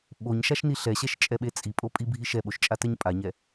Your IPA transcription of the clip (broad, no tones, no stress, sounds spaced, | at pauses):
ɓ o ɲ ʃ a ʃ n i ɬ ɛ ɕ ɛ ʃ t͡ʃʼ ɛ ɓ e t͡sʼ i pʼ o pʼ i bʱ i ʃ ɛ ɓ o ʃ t͡ʃʼ a t ɛ ɲ pʼ a ɲ ɛ